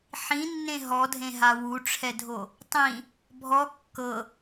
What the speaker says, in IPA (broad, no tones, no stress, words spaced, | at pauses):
ħĩnːẽ ɦɔdʱẽɦa wuʈ͡ʂʰɛdʱo | tˤĩ | bʱɔ kːɤ